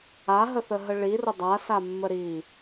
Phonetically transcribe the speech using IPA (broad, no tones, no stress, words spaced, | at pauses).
aɦəθəɦə ɭirʊ dˤasamːə ɾi